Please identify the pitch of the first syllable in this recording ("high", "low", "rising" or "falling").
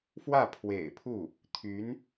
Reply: falling